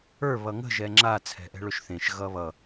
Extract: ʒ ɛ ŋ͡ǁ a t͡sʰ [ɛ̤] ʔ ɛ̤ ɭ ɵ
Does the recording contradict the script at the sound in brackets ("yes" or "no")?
no